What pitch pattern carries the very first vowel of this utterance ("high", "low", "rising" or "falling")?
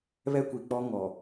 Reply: high